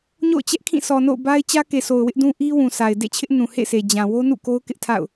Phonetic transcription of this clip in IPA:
ɲo̰˦˨ʊ̯ t͡ɕɛ˦ʔkʰĩ˦˨ sɔ˨no̰˦˨ʊ̯ba˦ɪ̯ t͡ɕä˦ke˨so˨ʊ̯ wɪ˦ʔdũ˦ ʔi˦wũ˨sʰa˨ɪ̯ dḛ˦˨t͡ɕʰɪ˦ʔ nũ˨hḛ˦˨sʰe˨ d͡ʑã˨ wo˦nṵ˦˨ko˦ʊ̯kɪ˦ʔ tʰa̰˦˨ʊ̯

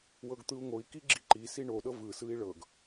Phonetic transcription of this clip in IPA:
wɤɡt̪ɯu̯ŋoi̯ kiɡ͡ǁiǃi siɳo ɗɤvɯ sɯi̯ɭɤɡ

